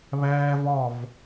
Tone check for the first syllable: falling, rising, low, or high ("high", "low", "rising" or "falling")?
high